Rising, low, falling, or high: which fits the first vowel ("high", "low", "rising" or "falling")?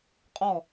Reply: falling